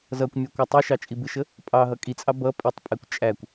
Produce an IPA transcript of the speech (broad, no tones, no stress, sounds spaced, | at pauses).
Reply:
z ʌ kʷ mʲ ʌ kʷ ə tˤ i ʃ ɑ t͡ʃʼ i b ɪ ʃ ə | pʼ ɑ ɦ ʌ kʼ i t͡sʼ ɑ b ʌ pʼ i tˤ pʼ ɛ kʷ t͡ʃʼ æ kʷ